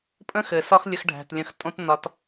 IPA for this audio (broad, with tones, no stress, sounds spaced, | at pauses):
pʼ ə̃˦ x ɘ˨ s ɒ˦ x lʲ ə˧ x ɖʱ æ̤˨ t lʲ ə̃˧ x tʼ õ˦ t n ɒ˧ t